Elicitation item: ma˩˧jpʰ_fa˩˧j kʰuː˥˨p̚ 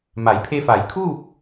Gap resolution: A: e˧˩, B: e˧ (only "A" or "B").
B